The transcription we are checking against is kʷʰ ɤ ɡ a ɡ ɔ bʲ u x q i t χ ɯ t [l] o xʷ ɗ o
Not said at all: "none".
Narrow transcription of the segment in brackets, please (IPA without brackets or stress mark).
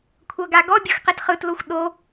l